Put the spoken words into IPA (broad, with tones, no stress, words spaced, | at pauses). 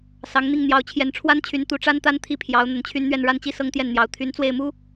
sɑ˧˥ŋn̪i˥˩ŋ n̪jɑ˧˥ʊ̯t͡ɕʰjɛ˧˥nʈ͡ʂʰwa˥nt͡ɕʰy˧˥n t̪u˧˥ʈ͡ʂa˥nt̪a˥n t̪ʰi˥˩pʰjɑ˧˥ʊ̯ n̪ə˧˥nt͡ɕʰy˥nn̪ɥɛ˥˧n ɻa˥˩nt͡ɕi˥ sɤ˥ŋt̪jɛ˥˩nn̪jɑ˧˥ʊ̯ t̪ʰy˧˥nt͡swe˥˩ɪ̯mu˥